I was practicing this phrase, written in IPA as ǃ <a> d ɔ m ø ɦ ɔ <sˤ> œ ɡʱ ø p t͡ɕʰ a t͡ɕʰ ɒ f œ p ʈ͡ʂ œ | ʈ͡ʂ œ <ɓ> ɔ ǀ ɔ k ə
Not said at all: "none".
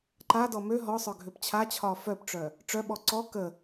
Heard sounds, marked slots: a, sˤ, ɓ

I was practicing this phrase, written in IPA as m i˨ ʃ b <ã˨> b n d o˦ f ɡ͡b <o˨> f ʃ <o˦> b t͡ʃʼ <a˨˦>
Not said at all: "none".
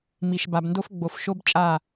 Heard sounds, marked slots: a˨, o˨, o˦, a˦˨

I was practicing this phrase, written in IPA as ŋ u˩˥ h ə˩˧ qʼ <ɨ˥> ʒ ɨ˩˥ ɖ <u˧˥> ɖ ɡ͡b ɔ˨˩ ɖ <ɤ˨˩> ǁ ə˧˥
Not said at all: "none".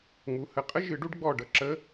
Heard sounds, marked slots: ə˥, u˧˥, ɤ˨˩

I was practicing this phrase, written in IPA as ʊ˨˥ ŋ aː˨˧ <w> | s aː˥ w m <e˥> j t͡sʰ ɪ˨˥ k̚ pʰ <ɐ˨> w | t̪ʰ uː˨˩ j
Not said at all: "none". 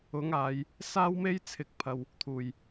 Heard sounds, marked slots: j, e˥, ɐ˨

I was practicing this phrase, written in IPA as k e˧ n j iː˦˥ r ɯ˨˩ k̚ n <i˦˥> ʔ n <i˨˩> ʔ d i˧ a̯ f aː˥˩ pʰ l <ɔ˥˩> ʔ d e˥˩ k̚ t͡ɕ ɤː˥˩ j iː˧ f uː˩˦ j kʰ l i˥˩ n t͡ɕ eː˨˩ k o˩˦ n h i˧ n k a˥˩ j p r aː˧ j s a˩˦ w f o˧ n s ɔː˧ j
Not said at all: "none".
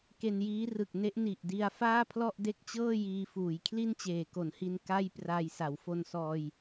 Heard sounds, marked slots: e˦˥, i˨˩, ɔ˥˩

